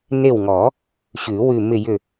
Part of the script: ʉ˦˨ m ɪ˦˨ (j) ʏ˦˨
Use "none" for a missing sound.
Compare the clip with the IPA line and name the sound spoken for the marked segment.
j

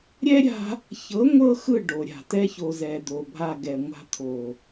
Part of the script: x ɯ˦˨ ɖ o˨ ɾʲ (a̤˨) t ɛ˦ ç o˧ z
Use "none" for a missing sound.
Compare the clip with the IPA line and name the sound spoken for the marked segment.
a̤˨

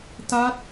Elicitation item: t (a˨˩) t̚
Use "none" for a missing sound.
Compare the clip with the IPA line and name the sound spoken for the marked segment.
a˦˥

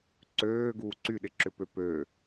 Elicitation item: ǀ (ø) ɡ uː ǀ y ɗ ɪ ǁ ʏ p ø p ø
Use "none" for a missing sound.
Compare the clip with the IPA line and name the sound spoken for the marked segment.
øː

